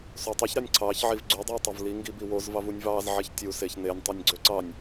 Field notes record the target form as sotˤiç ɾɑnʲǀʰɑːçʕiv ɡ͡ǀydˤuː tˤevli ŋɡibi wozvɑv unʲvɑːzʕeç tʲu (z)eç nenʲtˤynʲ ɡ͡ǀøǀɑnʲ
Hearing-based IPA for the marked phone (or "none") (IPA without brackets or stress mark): s